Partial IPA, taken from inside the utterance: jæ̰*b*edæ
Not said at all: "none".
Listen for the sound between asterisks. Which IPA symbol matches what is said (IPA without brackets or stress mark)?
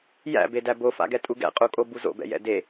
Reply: b